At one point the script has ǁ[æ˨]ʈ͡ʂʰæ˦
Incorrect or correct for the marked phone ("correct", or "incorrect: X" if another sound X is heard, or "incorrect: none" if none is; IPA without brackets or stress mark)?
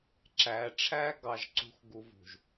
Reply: correct